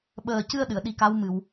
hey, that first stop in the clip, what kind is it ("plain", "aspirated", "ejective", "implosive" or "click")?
implosive